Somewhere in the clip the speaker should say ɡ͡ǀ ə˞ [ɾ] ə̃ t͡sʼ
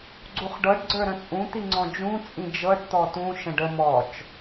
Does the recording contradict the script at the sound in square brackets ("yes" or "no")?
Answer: no